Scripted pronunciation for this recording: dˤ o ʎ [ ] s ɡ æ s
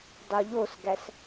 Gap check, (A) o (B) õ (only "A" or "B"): A